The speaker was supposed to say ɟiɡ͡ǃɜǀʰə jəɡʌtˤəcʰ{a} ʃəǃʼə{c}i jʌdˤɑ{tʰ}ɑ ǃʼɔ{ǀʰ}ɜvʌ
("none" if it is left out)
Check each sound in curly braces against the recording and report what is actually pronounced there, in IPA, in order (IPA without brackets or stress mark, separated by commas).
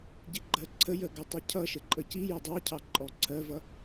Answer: ʌ, c, cʰ, ǀʰ